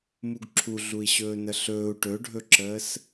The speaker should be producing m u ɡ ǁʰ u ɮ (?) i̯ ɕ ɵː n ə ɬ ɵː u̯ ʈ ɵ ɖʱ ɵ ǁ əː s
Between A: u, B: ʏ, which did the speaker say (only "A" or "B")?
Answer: A